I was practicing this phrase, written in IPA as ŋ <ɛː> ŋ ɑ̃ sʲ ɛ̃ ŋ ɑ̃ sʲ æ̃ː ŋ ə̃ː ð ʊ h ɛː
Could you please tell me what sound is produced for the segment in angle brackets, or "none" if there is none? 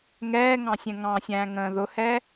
ɛː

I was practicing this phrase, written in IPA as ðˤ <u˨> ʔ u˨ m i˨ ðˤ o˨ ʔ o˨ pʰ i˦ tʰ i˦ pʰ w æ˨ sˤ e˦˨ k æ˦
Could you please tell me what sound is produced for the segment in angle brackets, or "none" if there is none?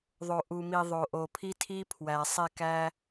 o˨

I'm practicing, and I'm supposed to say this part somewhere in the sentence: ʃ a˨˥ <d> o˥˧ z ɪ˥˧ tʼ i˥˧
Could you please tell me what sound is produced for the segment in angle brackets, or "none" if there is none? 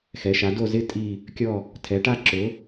d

